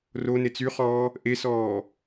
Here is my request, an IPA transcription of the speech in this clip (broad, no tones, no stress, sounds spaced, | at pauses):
r o n e t͡s y χ ɔː | ʔ e s ɔː